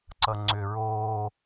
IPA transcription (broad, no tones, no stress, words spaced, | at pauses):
ǀʌŋ͡ǀʏ ɹoː